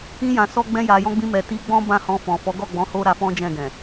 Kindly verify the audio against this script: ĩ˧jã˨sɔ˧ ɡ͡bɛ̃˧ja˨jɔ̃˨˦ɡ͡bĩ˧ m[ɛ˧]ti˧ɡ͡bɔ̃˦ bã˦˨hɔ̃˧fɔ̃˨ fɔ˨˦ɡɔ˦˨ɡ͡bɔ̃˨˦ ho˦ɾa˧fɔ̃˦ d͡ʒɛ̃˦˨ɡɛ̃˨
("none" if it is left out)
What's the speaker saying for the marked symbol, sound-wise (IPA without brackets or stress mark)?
ɛ˨